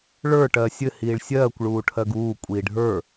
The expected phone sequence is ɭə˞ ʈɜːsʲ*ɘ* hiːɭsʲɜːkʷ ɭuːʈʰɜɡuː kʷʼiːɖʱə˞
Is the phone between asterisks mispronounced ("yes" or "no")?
no